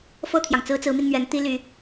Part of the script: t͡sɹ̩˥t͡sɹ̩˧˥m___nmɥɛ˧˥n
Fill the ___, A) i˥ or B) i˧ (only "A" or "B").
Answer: B